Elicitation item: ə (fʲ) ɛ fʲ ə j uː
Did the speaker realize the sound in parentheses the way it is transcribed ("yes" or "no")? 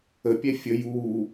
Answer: no